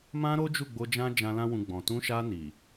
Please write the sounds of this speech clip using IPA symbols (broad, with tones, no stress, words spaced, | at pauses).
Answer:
mã˦ɾo˦ d͡ʒu˦˨ɡ͡bo˧d͡ʒã˦ d͡ʒã˦lã˦wũ˧ ɡ͡bɔ̃˨tũ˧ʃa˧ ni˨